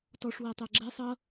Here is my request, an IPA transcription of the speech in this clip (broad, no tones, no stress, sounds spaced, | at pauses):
t ɔ ʂ w ɛ tˤ ɛ ɡ͡ǁ ɛ sˤ ʌ